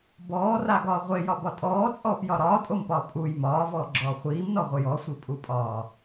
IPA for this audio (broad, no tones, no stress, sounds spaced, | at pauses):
b ɔː r a ɡ ɒː ʁʷ e j ɒ b ɒ tʼ ɔː t͡sʼ ɔː p j ɒ ɾ ɒː tʼ o m p ɒː pʼ u j m ɒː v ɔː ɡ͡ǁ ɔː χʷ iː m n ɔ ʁʷ e j ɔ sʷ i pʼ u pʼ ɒː